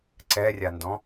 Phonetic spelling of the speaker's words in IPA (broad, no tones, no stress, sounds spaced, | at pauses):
ǀ ɛ rʲ a n d ɔ̃